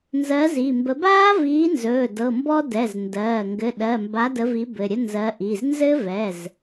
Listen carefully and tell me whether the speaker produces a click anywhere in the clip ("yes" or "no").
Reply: no